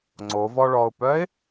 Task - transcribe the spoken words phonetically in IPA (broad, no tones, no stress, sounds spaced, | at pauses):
ŋ͡ǀ o v ɔ ɭ ɔ ʊ̯ p œ ɪ̯